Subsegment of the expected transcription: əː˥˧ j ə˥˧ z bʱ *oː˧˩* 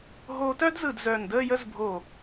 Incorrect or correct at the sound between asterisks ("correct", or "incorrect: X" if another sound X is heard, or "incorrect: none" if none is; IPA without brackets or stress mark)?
correct